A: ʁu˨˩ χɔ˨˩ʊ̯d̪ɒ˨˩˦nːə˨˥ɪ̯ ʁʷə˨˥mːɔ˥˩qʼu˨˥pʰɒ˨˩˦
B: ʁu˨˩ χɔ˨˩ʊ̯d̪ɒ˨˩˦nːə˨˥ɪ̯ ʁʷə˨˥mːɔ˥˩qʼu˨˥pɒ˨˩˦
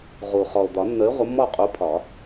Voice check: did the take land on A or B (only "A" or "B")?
A